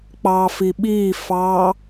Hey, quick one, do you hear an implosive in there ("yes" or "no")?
yes